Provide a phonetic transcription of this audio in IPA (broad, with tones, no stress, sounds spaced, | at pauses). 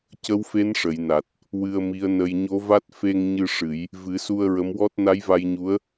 c ə˧˥ w f e˧˥ n ʂ ə˨˩˨ j n a˨˩ t̚ | w ɨ˧ ə̯ m i˧˥ ə̯ n ə˧ j ɲ o˧˥ v a˦˥ t̚ f e˧ ŋ ɲ ɨ˧ ʂ ɨ˨˩˦ j | v ɨ˨˩˦ s u˧ ə̯ ɹ ə˧˥ m w ɔ˦˥ t̚ n a˧˥ j v a˧ j ɲ u˧˥ ə̯